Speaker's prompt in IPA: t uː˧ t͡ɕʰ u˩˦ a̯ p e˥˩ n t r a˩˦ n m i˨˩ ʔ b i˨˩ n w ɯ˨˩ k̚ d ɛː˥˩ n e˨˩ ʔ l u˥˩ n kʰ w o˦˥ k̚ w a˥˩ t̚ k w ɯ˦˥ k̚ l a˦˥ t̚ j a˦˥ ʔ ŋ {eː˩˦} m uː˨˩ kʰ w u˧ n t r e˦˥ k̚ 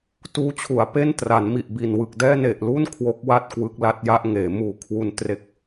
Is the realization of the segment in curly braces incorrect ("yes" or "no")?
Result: no